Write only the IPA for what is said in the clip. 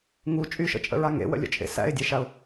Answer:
ŋu t͡ʃʼyʃə̰t͡ʃʼə̰ɹa ŋḛwə̰lʲə̰t͡ʃʼḛ sæ̰ɪ̯dʲeʃaʊ̯

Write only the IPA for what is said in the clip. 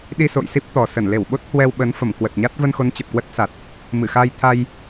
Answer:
ɗi˧so̰˧˨jsi˦˥p̚ t̪ɔ˨˩ sə˧˩nle˧˩wɓo˦˥t̚ hwɛ˧wɓə˨˦n fə˧˩mkwə˨˩t̚ɲa˦˥t̚ və˧nxo˨˦n t͡ɕə˨˩p̚kwə˦˥t̚sa˨˩t̚ | mɨ˧˩xa˧jt̪ʰa˧j

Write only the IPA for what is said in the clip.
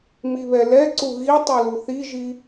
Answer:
miβɛlɛǀu ɣi tˤuluθiʒi

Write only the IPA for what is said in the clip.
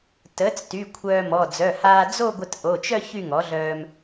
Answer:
təː˩˥t͡sty˩˧˩ kʷʰœː˧mɔ˩˧˩ d͡zœ˩˧˩haː˧ d͡zo˥˧ɡʷə˧t ʔo˩˧˩t͡ʃœ˥˧ çy˥˧ŋɔ˩˥ɮœː˧m

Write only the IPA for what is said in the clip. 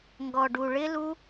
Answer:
ŋɡɔ˧ɖu˧ ɭɪ˦lu˦

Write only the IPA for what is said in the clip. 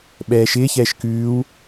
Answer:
ɓɛːʃɪːçɛːʃ kʉːw

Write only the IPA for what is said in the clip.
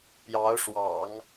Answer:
pjɑ˧˥ʊ̯ʂwɑ̰˨˩˦ŋ

